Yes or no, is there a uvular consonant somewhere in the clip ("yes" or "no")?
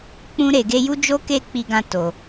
no